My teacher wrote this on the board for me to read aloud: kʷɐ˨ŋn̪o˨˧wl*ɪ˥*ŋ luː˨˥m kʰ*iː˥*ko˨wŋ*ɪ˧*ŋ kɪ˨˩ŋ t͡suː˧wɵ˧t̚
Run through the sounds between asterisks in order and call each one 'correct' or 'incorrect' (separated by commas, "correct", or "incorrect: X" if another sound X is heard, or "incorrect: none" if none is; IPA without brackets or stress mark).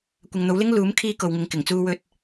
correct, correct, correct